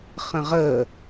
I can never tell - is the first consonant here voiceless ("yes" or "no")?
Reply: yes